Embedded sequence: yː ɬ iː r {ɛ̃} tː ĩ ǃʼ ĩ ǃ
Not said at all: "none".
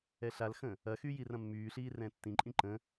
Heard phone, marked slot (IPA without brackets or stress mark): ɛ̃